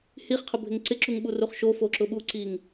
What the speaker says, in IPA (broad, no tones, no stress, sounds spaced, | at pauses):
h i χ qʰ ʊ bʱ ɪ ŋ ǀ ɪ ǁ u ŋ ɓ u r u χ ʃ o f o ǁ ʊ ɓ u ǀ i ŋ